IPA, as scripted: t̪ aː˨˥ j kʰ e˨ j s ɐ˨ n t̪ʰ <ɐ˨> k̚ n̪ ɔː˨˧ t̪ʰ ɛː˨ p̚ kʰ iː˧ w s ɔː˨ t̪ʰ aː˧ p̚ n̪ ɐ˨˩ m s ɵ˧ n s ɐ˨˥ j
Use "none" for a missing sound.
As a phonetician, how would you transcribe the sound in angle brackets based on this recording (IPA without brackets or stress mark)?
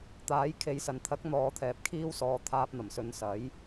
ɐ˨˥